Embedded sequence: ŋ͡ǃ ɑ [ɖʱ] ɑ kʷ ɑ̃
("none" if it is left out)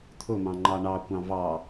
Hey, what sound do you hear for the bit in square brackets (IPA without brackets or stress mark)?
ɳ